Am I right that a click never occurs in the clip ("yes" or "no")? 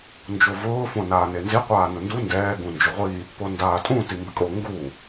yes